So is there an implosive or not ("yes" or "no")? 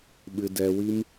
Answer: yes